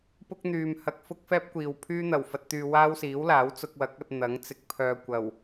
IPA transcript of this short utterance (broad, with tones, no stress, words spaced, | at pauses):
pʊ˥k̚n̪yː˨mhɐ˧k̚ fʊ˥k̚fɛː˥p̚kʷiː˨w pʰyː˥n̪ɐ˨˩w fɐ˨t̚t̪yː˨ waː˥wsiː˨˥wlaː˨˥w t͡sʊ˧k̚wɐ˨˥k̚ɐ˧t̚ n̪ɐ˨˥ŋt͡sɪ˨k̚ pʰœː˨kʷɐ˨˩w